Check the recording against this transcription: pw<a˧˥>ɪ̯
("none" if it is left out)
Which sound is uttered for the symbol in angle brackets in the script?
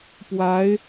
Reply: a˧˥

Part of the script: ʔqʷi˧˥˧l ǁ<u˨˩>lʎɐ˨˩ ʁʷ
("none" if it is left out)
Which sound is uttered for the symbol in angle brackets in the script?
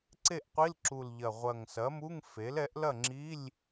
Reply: u˨˩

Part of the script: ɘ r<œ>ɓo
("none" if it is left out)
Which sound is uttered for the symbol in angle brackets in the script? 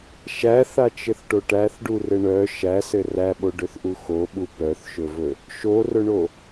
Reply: æ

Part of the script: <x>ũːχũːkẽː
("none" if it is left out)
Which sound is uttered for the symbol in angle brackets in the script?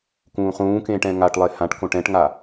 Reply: k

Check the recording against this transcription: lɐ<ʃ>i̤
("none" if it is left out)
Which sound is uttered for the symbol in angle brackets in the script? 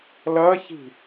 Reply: ç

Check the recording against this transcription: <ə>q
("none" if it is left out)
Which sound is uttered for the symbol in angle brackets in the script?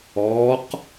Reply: ɔ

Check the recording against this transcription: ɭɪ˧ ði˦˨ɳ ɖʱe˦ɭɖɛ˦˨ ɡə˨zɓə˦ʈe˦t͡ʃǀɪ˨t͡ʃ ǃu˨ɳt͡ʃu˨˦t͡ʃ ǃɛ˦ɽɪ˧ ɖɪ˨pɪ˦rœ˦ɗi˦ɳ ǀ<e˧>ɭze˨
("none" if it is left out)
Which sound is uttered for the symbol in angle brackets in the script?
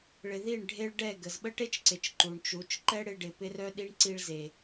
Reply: i˧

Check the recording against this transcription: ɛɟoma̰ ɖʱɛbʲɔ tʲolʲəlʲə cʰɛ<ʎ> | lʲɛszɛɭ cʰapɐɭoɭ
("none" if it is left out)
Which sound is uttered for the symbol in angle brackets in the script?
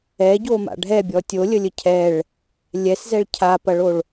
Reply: ɭ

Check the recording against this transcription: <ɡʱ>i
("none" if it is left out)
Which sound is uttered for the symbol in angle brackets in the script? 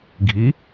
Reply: ɡʱ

